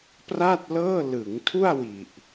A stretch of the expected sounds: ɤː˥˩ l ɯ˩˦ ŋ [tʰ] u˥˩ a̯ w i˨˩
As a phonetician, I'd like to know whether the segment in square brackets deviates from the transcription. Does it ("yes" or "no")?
no